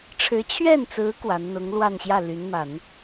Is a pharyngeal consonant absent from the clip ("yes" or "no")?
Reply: yes